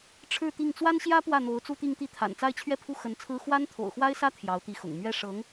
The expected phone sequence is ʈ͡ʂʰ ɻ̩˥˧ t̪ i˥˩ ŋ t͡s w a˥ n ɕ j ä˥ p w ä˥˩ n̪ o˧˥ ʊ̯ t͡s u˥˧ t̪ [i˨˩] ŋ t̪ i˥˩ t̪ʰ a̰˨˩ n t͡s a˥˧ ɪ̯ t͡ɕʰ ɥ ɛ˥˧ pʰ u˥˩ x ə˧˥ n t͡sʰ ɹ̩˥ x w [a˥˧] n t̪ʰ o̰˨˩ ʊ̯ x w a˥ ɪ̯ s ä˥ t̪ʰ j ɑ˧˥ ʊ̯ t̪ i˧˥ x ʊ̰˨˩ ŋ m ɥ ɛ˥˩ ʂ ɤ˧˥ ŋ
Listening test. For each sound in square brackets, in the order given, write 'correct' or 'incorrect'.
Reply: incorrect: i˥˧, incorrect: a˥

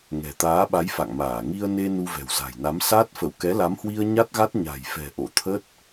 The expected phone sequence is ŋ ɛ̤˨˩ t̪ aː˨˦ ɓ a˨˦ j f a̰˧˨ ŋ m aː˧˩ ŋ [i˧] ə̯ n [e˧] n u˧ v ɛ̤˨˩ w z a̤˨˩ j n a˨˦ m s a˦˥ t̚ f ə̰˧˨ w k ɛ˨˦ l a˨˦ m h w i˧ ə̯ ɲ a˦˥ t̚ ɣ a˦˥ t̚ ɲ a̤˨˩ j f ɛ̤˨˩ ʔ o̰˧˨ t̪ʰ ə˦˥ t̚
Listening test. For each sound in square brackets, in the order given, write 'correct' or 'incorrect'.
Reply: correct, correct

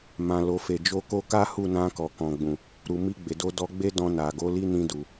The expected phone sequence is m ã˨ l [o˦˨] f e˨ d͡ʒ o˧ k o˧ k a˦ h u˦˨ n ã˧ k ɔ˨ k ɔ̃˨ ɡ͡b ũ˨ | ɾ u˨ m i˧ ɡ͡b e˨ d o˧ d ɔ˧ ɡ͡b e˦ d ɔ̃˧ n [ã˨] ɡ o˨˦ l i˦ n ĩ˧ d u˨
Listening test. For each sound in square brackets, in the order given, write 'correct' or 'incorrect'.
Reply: incorrect: o˨, incorrect: a˨

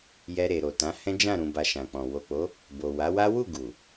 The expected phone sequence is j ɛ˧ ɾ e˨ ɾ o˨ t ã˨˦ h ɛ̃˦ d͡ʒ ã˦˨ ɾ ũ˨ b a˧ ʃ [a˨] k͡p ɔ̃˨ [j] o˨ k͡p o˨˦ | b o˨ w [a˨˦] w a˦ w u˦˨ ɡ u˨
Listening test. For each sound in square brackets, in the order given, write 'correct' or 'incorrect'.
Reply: incorrect: ã˨, incorrect: w, correct

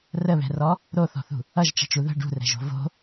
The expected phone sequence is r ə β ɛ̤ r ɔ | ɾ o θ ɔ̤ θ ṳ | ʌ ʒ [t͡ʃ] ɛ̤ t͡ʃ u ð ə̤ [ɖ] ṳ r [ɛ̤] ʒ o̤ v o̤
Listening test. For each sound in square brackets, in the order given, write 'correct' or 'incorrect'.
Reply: correct, correct, correct

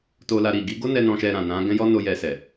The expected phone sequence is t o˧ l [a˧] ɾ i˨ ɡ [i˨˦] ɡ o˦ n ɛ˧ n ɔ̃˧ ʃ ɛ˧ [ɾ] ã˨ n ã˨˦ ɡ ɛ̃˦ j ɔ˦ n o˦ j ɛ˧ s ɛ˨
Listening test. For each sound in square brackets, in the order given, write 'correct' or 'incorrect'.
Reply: correct, correct, correct

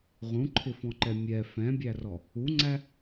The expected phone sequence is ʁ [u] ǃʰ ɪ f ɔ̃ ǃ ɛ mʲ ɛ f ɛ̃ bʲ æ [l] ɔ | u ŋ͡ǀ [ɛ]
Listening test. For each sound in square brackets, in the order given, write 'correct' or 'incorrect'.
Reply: incorrect: ũ, incorrect: r, incorrect: æ

